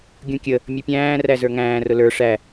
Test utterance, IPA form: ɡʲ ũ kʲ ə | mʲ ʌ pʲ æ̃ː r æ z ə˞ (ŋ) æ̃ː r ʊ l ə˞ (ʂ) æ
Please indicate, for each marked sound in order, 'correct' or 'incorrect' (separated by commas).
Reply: correct, correct